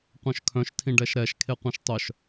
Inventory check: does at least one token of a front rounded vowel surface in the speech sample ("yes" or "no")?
yes